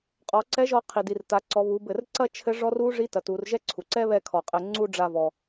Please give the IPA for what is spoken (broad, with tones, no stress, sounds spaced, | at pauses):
qʼ ɔ˩˧ ǀ ɛ˧˥ ʒ ɔ˧ qʰ i˩ d i˩ r t a˩˧ ǀ ɔ˩˧ β u˩˧ b ɘ˩ r ǀ ɐ˥ t͡ʃʰ ɘ˧˥ ʐ ɔ˧˥ r u˧˥ ʐ i˧˥ t ɐ˩˧ t u˩˧ r ʒ ɛ˧˥ ǀʰ u˩ ǀ ɛ˥ β ɛ˧ kʰ ɔ˩ qʼ ɘ˩˧ ŋ͡ǀ u˥ ɖ͡ʐ a˧ v ɔ˩